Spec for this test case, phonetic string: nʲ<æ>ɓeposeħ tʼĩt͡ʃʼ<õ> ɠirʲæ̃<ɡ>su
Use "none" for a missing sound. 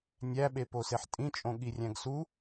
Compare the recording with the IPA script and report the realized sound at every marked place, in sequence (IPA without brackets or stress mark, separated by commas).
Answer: æ, õ, ɡ